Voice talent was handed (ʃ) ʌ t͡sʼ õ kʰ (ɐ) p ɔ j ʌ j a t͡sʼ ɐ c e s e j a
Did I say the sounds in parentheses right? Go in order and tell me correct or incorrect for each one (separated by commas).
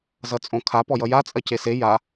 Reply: incorrect, incorrect